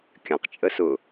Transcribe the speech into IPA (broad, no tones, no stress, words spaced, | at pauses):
kʲɐ̃qt͡ʃʼəsʊː